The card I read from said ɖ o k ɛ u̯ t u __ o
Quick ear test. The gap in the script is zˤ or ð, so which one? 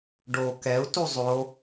zˤ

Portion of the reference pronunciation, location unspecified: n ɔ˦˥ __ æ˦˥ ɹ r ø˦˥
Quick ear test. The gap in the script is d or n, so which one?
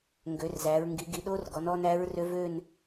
n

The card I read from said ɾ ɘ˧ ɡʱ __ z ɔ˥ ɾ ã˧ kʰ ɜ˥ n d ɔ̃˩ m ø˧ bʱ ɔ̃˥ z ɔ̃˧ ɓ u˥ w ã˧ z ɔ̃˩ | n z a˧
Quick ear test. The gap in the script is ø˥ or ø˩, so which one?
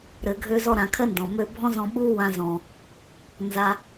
ø˥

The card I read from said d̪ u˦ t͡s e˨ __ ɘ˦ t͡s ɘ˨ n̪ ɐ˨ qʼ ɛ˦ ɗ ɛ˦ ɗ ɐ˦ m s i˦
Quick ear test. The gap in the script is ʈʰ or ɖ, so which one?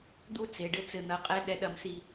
ɖ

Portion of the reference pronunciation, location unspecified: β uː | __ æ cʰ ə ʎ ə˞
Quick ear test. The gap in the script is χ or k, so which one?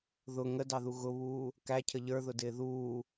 k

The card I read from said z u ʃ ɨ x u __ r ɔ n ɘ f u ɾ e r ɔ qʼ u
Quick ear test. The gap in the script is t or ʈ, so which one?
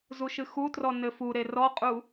t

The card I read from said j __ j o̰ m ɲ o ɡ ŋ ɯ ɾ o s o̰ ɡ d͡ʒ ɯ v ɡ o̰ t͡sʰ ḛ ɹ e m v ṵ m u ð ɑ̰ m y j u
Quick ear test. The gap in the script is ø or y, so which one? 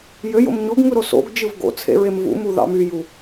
ø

